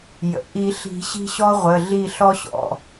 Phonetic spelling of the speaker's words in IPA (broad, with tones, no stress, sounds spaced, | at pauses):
j ə̰˩ ʔ i˨˩˦ ɬ i̤˨˩˦ ɕ i̤˦ ɕ ɔ˦ ʁʷ ə˩˧˩ ɮ i˧˩ ɬ ɔ˦ ɕ ɔ̰˩˧˩